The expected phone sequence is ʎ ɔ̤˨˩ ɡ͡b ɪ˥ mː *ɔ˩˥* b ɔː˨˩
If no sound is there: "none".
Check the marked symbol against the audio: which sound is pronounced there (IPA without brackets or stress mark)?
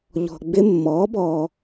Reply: ɔː˩˥